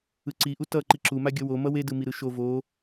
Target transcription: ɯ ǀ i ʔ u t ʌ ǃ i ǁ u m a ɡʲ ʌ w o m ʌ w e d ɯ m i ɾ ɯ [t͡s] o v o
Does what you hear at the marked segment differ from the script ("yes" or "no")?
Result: yes